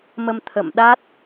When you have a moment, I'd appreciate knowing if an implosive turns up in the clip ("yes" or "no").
yes